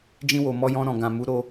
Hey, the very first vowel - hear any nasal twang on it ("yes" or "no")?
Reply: yes